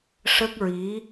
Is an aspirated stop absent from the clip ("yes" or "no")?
yes